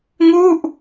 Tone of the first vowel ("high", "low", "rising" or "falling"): falling